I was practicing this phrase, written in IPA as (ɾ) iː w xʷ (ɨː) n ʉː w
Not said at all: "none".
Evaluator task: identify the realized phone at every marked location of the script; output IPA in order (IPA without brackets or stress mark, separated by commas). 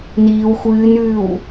n, ɨː